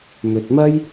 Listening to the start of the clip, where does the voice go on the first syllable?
low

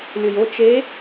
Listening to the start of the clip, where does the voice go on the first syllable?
low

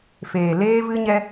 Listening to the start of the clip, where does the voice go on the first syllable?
low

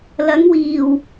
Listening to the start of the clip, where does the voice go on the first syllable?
rising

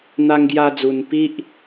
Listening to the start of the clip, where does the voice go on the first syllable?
high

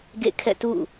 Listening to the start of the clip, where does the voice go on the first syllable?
falling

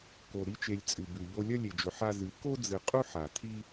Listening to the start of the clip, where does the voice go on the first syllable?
low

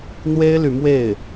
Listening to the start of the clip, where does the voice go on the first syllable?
high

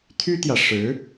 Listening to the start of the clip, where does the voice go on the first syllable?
high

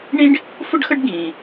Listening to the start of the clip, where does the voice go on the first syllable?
high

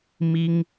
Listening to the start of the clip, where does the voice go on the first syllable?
high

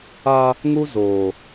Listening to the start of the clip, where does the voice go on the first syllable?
high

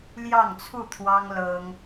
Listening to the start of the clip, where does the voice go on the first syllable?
falling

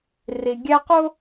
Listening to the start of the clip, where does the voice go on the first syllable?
low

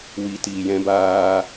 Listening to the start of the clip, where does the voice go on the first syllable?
low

